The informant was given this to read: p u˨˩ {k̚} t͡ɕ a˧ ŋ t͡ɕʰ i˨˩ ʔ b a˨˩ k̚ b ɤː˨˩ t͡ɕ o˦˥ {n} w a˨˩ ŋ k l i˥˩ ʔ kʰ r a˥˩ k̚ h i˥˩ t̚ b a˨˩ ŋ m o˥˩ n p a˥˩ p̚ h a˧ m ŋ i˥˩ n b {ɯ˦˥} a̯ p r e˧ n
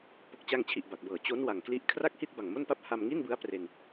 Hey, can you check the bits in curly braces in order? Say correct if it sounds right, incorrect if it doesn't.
correct, correct, correct

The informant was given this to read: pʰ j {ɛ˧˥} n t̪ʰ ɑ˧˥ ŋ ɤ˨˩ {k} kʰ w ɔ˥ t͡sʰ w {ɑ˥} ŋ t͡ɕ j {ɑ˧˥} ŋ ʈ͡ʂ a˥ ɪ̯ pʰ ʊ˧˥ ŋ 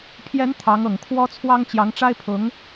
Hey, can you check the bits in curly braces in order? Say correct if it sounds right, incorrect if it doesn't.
correct, incorrect: ŋ, correct, correct

